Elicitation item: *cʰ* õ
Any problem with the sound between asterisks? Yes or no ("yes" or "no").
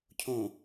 no